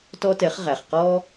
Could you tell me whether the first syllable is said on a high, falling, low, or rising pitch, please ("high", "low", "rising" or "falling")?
high